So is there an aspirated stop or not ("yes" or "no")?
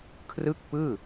yes